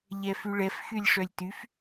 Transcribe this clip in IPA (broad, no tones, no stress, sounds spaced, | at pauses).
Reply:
ʎ ɛ f y ɭ ɛ f x y lʲ ʂ œ lʲ t y f